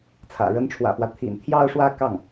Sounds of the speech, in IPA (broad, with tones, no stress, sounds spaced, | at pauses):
t͡sʰ ä̰˨˩ ɻ ə˧˥ n ʈ͡ʂʰ w ä̰˨˩ f w ä˦ t̪ʰ ḭ˨˩ n t̪ʰ j ɑ˥˧ ʊ̯ ʂ w ä˥˧ k ɑ˥˩ ŋ